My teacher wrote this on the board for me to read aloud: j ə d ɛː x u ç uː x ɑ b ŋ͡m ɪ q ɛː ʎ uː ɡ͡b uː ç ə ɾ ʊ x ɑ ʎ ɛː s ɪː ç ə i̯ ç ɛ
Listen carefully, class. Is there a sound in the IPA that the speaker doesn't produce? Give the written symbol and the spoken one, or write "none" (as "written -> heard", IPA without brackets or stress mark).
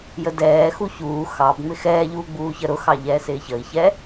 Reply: q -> x